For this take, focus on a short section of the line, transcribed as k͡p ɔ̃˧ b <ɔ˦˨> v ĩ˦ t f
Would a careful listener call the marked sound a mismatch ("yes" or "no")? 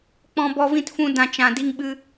yes